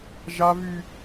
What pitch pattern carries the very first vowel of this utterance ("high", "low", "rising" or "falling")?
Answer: high